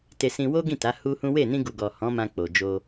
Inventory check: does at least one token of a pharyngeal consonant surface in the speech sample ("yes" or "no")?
no